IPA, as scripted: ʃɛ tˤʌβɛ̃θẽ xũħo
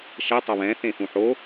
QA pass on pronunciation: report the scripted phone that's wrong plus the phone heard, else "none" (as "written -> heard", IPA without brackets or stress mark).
none